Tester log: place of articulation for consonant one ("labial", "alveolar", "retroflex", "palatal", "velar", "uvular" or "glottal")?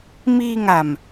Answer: labial